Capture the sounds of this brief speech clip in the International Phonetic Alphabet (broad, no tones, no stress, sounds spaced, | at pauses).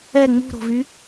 ɛ ŋ͡m ṳ ɾ o̤ v y